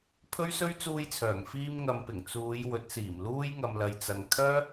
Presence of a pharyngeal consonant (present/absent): absent